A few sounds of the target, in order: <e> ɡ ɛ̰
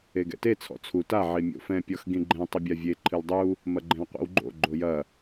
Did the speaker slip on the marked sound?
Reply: no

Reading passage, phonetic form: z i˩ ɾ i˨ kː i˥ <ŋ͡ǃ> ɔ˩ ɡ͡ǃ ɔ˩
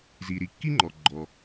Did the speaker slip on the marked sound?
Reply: no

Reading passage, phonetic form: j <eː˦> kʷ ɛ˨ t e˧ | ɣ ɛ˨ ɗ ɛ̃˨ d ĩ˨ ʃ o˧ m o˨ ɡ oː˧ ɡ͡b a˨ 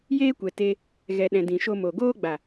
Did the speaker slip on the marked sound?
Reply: no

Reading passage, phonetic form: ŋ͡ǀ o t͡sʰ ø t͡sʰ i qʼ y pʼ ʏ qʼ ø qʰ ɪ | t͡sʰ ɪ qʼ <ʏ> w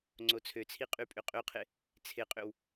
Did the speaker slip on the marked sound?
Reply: no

